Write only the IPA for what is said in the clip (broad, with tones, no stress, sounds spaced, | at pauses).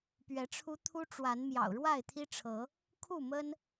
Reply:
p ɥ ɛ˨˦ ʈ͡ʂʰ u˦ t̪ʰ u˦ ʈ͡ʂ w a˨˦ n m j ɑ̰˨˩ ʊ̯ ɻ w a˥˨ ɪ̯ t̪ʰ i˦ ʈ͡ʂʰ ɤ˨˦ | kʰ u˥˨ m ə˦ n